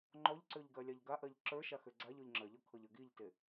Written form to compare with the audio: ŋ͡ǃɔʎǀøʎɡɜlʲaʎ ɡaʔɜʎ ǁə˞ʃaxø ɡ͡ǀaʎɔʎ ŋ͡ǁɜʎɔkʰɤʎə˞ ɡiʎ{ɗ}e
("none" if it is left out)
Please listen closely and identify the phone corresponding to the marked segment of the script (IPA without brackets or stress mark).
t